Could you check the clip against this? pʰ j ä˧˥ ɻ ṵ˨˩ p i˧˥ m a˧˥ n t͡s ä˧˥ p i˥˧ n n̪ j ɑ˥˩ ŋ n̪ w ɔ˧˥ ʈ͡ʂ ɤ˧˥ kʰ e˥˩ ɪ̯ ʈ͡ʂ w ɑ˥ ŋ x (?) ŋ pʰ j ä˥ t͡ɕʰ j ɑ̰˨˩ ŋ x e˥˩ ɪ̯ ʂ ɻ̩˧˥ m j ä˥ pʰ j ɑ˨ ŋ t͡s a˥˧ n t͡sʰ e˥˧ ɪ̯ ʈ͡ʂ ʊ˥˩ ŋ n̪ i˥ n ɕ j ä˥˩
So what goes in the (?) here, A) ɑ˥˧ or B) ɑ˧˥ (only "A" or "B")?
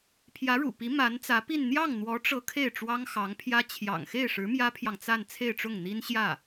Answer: B